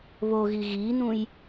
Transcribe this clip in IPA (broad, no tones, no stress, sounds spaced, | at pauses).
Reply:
β o ɣ i ɣ i n̪ ũ j